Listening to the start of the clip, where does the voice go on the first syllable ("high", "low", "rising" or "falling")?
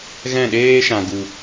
falling